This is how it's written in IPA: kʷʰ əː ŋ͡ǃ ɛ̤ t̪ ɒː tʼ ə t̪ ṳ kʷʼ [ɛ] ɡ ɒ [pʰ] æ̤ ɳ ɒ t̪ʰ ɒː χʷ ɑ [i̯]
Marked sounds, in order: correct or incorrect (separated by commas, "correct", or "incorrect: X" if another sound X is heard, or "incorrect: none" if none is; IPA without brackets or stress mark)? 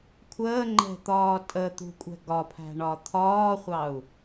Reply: incorrect: ɛ̤, correct, incorrect: u̯